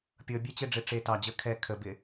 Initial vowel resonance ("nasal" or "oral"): oral